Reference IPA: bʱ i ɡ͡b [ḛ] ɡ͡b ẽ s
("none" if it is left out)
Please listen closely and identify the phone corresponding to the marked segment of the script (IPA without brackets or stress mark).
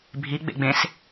ḛ